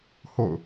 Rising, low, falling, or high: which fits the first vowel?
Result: falling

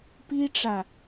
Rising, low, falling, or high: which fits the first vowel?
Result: high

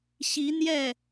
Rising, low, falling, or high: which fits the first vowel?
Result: rising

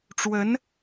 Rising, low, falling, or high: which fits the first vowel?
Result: rising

